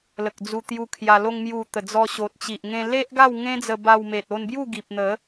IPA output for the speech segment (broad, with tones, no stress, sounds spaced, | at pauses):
l ə˨ k̚ d͡z u˧ t̪ j u˧ kʰ j a˧ l o˧ ŋ m j u˨˩ t̪ ə˨˩ d͡z ɔ˧ ɕ o˨ t̚ t͡ɕ i˨ ʔ ŋ ẽ˧ l e˦ ʔ ɡ a˥˧ w ŋ ẽ˦ d͡z ə˧ b a˧ w m e˨ t̚ o˧ n b j u˥˧ ɡ i˨ p̚ n̪ ə˨˦